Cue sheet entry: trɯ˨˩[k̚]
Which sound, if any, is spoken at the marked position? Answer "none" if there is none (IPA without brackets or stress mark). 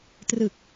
k̚